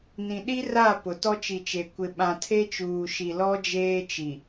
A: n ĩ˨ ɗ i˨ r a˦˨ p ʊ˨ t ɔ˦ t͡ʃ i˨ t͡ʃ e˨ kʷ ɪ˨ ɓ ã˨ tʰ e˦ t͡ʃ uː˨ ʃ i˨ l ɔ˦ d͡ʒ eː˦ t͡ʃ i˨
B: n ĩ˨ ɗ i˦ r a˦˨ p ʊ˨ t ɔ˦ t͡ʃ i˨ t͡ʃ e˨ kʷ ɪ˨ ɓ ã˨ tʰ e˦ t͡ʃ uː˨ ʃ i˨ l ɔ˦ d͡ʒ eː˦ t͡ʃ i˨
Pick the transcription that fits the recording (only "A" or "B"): B